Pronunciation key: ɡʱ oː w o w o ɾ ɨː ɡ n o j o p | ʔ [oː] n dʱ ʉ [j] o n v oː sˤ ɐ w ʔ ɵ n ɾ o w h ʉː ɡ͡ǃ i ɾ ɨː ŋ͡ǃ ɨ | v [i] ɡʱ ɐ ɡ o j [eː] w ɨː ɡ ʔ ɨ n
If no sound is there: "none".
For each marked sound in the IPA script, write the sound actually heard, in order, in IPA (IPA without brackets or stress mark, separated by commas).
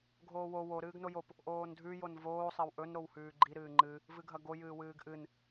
oː, j, ɨ, ɨː